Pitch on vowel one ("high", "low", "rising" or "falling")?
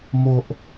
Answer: high